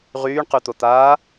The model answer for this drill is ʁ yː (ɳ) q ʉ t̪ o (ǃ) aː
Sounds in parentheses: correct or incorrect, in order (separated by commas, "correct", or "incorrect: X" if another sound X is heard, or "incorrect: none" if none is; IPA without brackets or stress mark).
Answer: correct, incorrect: t̪